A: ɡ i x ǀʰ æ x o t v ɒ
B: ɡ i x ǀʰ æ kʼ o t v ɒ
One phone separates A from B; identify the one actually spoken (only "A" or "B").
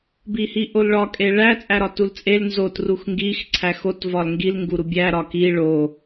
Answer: A